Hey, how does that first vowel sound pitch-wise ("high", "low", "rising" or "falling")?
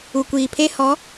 low